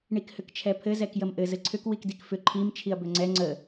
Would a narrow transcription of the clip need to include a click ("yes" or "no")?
yes